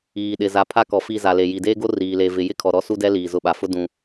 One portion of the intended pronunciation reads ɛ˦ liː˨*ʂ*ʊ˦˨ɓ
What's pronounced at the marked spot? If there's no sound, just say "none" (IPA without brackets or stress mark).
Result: z